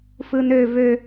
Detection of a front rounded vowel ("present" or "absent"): present